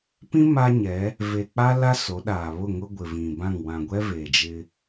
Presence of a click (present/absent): absent